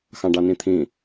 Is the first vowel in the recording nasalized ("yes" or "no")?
yes